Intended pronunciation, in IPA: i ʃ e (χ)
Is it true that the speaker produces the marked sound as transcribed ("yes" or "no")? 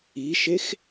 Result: no